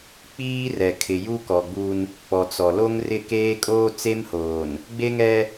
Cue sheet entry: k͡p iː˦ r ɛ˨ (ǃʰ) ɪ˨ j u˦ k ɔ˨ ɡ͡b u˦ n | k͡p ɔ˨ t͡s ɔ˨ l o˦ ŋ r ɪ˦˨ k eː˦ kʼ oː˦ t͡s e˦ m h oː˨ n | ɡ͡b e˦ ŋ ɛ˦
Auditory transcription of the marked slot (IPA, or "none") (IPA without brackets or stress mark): kʰ